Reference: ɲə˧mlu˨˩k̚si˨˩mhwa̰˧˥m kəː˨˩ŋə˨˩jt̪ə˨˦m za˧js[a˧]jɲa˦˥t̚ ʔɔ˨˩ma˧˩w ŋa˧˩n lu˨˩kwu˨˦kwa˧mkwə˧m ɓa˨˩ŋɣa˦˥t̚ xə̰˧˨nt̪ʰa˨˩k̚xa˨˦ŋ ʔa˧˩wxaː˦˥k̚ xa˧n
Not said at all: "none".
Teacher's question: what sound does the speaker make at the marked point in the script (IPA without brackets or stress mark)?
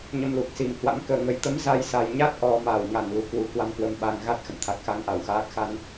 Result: a˨˩